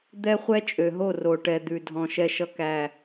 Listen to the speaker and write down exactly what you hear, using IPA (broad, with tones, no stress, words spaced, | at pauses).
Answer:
d̪ɛ˦χʷɛ˦t͡ʃʼø˨ɦo˦˨ ro˨ʈɛ˨ d̪ʉ˨dʱɔ̃˨ ʃɛ˨ʃʌ˨kæ˨